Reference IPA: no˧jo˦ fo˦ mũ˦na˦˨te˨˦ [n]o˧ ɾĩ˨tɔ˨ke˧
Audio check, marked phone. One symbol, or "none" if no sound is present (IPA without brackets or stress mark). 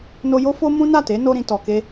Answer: n